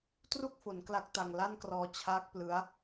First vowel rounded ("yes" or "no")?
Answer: yes